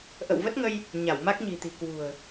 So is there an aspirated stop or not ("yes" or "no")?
no